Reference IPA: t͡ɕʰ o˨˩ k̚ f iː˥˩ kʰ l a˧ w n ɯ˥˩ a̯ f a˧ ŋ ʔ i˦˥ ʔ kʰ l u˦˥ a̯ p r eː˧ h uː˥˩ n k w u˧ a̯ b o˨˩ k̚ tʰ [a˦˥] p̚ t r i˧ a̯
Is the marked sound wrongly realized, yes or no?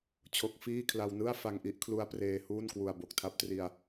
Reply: no